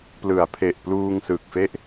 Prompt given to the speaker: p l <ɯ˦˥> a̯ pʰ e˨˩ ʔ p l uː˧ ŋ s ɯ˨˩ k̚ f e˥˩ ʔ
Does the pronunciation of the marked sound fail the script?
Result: yes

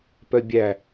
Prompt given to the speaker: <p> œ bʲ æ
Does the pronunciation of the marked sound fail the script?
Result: no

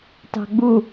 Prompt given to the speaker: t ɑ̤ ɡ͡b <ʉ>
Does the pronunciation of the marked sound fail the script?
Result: yes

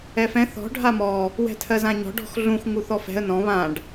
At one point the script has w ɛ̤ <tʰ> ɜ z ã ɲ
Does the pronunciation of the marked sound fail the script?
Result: no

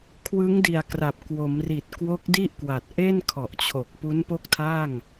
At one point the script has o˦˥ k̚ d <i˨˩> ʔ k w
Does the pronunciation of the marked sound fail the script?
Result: yes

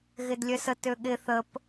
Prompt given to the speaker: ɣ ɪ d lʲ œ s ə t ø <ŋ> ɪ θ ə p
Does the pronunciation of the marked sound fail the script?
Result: yes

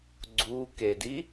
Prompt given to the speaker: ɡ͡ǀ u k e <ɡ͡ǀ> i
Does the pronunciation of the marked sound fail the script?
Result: yes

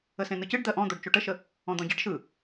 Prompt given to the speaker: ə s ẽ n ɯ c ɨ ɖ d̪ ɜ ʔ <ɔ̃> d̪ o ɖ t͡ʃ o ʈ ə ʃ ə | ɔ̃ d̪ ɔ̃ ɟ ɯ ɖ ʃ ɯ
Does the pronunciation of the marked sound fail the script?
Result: no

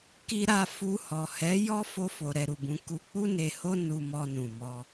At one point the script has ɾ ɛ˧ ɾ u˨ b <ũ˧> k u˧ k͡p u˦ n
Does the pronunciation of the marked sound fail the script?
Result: no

